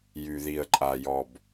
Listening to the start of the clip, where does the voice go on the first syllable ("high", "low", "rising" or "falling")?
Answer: low